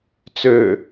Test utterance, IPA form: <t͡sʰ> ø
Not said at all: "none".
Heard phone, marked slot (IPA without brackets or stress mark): t͡s